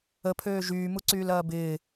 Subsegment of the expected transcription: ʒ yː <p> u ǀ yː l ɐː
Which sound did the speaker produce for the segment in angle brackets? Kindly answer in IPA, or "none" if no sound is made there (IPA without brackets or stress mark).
m